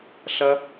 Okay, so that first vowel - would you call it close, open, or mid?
open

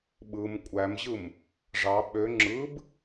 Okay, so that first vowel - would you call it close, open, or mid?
close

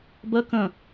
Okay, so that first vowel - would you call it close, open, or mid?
mid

